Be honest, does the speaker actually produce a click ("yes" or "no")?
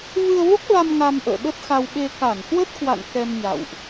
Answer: no